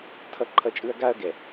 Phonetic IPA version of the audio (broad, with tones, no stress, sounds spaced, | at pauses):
tʰ ʌ˦ ǃʰ ʌ˦ t͡ʃʼ ɯ˦ ɐ̯ ɡ a˦ ɐ̯ ɡ ɛ˨